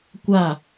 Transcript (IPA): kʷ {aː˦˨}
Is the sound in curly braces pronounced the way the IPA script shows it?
yes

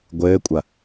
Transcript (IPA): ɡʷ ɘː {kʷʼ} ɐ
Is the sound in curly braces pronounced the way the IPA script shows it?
yes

